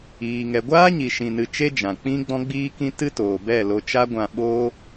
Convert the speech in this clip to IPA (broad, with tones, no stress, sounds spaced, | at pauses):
iː˨ ŋ ɛ˨ ɡʷ aː˦ ɲ i˨ ʃ ĩ˨ n ɨ˨ t͡ʃ e˦ d͡ʒ ã˨ k͡p ĩ˦ ɡ͡b ɔ̃˦ ɡ͡b iː˦ k ĩ˦ t ɨ˦ t oː˨ b ɛ˦˨ l o˧ t͡ʃ a˦ ɡʷ ã˧ ɓ oː˦